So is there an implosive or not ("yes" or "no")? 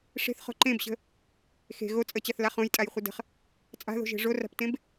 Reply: no